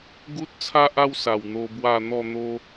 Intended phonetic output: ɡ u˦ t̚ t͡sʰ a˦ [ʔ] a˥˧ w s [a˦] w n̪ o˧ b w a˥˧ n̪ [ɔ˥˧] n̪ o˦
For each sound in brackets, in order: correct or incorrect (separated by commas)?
correct, incorrect, correct